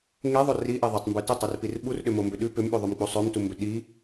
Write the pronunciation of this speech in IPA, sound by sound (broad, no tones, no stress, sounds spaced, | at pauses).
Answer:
ŋ e ðˤ o r i ʔ e ðˤ ʏ tˤ m b ʉ t ʏ tˤ i r p i r ɓ u r ɗ ʏ m o m b ʏ ɗ ʉ p ʏ m ɓ ʉ ðˤ ʉ m k͡p u sˤ ø m t u m b ʏ ɗ i